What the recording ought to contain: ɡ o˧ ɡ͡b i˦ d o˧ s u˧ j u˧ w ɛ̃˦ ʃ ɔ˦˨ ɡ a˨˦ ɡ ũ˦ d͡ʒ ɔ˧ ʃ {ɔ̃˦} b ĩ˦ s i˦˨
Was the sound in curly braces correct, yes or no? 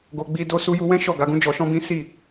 yes